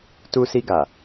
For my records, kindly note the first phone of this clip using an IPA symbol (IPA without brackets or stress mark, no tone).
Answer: t